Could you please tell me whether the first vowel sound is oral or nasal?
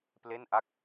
oral